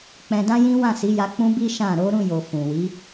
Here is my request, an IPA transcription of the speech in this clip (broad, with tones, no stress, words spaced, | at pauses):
k͡pɛ̃˧dã˦jĩ˦ wã˦˨si˨˦ja˧ k͡pũ˦bi˦ ʃã˦˨ ɾo˨˦ɾũ˦˨jo˨ fũ˨wi˨˦